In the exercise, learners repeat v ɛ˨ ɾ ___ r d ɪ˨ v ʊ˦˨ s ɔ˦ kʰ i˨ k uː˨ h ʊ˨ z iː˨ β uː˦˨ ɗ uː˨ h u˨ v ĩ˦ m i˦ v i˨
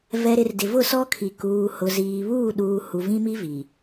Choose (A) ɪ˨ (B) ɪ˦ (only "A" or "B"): A